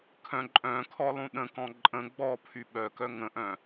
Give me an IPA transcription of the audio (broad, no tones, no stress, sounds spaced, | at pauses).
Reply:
kʰ œ̃ ǃʼ œ̃ kʰ ɔ lˠ ũ ɗ ə̃ k ɔ̃ ǃʼ ə̃ ɡ͡b ɔ pʰ y ɓ œ k œ ŋ ə̃ ʔ œ̃